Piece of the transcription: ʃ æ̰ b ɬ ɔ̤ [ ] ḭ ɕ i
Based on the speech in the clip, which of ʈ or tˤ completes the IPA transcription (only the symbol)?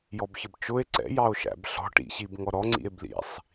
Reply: ʈ